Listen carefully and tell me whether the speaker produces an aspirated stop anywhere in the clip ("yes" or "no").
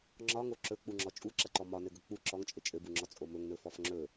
no